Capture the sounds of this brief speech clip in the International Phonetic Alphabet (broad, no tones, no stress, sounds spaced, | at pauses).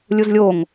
lʲ u z lʲ o ŋ